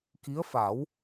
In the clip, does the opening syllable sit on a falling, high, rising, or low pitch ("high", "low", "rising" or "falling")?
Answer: rising